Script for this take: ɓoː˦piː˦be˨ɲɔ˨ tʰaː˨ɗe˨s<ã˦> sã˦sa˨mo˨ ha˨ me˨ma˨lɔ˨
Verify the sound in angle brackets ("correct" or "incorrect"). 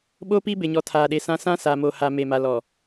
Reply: correct